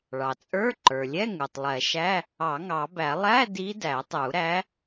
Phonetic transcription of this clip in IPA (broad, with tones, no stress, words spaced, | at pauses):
ɭɑ˩t͡sʼə˞˧˥˧ǃə˞˩lʲɛ˧˥˧ ŋu˩tˤlˠɛ˨˩˦ʃæ˧˥˧ | ɑ˨˩˦ŋɑ˨˩˦bæ˨˩˦ lˠæ˧˥˧ di˧˥dæ˨˩˦tˤu˨˩˦ɾæ˧˥